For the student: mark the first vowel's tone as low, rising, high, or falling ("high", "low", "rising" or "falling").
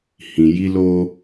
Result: low